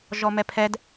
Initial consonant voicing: voiced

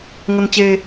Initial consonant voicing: voiced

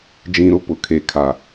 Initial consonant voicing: voiced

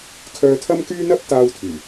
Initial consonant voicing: voiceless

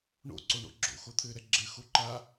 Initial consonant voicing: voiced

